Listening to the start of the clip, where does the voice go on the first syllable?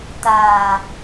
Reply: low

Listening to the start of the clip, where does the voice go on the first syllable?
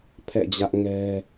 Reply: falling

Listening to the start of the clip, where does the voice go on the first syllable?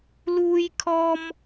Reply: high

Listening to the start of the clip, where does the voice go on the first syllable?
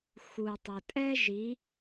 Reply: low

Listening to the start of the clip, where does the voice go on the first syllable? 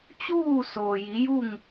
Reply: falling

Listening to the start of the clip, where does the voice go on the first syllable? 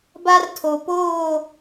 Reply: high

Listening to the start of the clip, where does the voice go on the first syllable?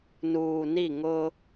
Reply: low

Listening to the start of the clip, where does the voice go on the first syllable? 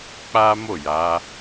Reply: high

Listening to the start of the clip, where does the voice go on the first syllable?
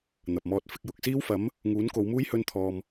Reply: low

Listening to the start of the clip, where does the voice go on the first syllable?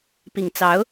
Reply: low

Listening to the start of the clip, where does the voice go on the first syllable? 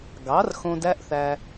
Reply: rising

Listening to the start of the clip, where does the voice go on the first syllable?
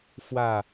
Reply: falling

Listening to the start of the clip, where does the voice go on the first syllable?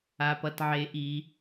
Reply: low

